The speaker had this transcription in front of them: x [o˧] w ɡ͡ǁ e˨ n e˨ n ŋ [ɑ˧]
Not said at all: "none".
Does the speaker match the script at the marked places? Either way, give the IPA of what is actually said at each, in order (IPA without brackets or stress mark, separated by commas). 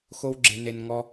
o˧, ɔ˧